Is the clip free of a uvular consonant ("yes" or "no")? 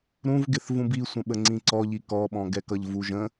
yes